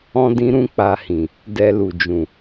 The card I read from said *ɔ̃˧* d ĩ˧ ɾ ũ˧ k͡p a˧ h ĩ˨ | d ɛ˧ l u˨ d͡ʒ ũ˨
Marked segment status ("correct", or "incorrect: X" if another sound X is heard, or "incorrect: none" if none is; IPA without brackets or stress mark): correct